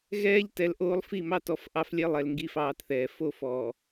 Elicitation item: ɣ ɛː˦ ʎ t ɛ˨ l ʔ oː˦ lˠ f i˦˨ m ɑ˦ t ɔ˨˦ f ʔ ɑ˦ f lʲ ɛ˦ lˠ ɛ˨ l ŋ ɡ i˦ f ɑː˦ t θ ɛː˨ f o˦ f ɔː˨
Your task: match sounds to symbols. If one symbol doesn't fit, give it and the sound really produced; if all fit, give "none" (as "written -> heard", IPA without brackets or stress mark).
none